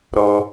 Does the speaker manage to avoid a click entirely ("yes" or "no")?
yes